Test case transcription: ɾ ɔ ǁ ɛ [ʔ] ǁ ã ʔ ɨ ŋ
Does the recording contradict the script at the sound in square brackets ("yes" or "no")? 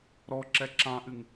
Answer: yes